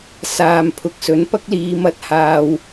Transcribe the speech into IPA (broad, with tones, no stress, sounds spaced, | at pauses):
s aː˨ m pʰ ʊ˨˥ k̚ s ɵ˨˥ n p ɐ˥ k̚ l iː˨˧ m ɐ˧ t̚ h aː˨ w